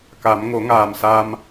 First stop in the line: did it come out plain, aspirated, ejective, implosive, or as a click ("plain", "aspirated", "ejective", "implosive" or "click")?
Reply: plain